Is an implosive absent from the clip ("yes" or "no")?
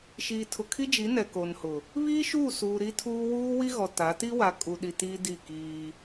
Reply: no